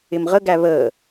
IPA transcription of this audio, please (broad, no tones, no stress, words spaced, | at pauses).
ɪmʁəɡæ βəː